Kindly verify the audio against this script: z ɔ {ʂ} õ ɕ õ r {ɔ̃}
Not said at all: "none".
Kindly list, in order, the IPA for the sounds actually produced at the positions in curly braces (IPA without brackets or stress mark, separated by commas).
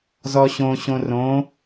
ɕ, õ